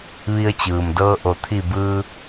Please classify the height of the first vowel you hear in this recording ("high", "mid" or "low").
high